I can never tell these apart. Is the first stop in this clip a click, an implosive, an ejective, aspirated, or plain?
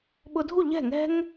implosive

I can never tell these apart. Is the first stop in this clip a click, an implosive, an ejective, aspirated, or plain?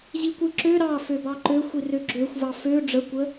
plain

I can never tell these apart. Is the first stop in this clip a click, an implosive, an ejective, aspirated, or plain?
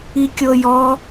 plain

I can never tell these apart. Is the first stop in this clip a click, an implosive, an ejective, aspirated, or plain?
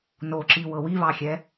click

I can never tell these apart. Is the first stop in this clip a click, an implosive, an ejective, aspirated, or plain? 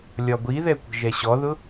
plain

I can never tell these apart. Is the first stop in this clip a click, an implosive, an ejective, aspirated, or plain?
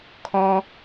aspirated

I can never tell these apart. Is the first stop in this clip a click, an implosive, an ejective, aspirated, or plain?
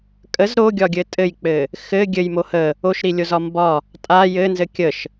ejective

